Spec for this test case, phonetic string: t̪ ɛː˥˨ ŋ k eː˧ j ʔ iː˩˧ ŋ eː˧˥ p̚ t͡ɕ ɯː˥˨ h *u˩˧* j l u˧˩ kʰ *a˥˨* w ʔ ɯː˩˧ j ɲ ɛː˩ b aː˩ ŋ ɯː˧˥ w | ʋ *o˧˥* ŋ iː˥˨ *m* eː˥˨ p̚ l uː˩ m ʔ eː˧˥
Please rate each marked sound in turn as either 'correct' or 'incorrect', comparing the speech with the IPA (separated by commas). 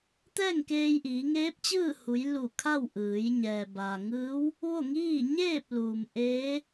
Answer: correct, correct, incorrect, incorrect